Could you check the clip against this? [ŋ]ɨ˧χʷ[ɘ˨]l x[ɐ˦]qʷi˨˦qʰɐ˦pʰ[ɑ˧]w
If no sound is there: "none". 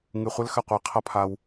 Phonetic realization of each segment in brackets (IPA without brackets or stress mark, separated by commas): ŋ, ɘ˦, ɐ˧, a˧